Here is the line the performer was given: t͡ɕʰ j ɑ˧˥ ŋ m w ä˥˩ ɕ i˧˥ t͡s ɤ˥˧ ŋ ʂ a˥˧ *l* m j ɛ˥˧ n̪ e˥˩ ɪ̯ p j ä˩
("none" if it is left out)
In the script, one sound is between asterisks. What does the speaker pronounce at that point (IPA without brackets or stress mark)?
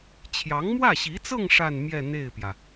n